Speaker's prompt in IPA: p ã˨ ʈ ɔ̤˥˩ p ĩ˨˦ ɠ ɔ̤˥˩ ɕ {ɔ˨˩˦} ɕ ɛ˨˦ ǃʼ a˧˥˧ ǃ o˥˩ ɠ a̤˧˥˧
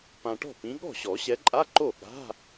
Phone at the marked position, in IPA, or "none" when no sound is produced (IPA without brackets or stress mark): ɔ˨˩˦